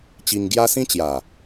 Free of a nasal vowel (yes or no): no